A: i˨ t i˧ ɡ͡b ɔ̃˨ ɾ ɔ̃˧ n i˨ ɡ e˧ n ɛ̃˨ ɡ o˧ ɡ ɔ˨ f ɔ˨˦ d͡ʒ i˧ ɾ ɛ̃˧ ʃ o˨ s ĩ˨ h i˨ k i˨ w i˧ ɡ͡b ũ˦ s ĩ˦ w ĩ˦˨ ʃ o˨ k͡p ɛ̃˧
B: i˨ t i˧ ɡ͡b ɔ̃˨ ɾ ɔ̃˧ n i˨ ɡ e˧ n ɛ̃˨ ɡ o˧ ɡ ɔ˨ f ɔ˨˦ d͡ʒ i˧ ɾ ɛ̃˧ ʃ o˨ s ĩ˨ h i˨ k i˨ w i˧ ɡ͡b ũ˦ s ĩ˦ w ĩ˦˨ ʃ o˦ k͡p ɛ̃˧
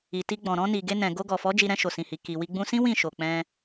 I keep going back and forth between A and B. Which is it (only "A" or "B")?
A